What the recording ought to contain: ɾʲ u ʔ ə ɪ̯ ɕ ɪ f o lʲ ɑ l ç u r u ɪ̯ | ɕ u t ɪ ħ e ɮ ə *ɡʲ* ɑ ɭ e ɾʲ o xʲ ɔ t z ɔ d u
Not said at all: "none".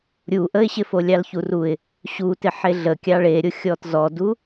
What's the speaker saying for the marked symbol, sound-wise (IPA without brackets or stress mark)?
kʲ